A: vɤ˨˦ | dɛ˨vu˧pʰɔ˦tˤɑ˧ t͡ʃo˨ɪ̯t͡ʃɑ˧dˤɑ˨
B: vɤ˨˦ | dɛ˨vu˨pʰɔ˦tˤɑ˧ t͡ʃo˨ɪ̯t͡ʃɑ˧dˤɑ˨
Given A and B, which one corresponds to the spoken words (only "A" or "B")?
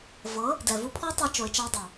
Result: A